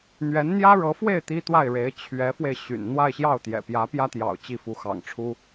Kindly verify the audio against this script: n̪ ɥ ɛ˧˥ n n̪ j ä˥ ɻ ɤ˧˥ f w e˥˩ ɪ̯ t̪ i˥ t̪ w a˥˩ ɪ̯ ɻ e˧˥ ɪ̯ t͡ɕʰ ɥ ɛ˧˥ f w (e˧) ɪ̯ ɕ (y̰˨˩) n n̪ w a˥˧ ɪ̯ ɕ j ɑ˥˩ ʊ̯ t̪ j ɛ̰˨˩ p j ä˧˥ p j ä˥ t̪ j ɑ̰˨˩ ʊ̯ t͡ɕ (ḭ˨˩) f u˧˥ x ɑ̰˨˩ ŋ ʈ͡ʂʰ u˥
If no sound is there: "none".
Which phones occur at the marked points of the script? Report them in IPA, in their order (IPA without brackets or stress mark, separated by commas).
e˧, y̰˨˩, i˥˩